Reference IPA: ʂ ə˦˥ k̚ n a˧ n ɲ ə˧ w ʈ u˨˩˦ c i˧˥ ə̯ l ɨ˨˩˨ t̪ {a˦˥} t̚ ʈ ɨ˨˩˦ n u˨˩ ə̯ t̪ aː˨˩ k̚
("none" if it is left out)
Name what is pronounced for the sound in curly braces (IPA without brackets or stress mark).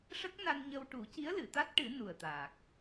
a˦˥